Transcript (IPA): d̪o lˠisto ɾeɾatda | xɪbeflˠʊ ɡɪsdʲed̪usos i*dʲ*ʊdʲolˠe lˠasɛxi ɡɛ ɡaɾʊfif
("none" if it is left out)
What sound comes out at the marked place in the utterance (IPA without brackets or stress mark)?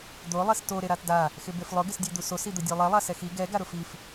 d̪